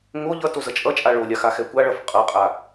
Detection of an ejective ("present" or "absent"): present